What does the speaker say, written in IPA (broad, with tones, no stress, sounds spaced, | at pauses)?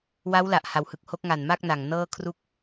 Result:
w a˦˥ w l a˨˩ ʔ h a˨˩ w h ɯ˨˩ k̚ h o˦˥ k̚ ŋ a˨˩ n m a˥˩ k̚ n a˨˩ ŋ n ɤː˥˩ kʰ r u˥˩ k̚